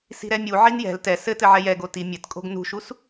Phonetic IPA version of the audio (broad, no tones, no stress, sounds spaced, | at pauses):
s i̤ ɾ ɛ mʲ u ʕ i n j ɛ̤ l t ɛ s ɘ t ɘ ʕ ɛ j ɛ ɡ o t i mʲ ɘ t kʼ o̤ ɡ n ṳ ʃ u s